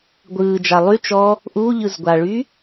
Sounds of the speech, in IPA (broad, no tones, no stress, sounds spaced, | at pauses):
ɡʷ ɯː d͡ʒ a lˠ y t͡ʃ ɔ | ʔ u ʎ ɯ z ɡʷ a ɭ y